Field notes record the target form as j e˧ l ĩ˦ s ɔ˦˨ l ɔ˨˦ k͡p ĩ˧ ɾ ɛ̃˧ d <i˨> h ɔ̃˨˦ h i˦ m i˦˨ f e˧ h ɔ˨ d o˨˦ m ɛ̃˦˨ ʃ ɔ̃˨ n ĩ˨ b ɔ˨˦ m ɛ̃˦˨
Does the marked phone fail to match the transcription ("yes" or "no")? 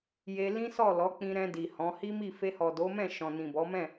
no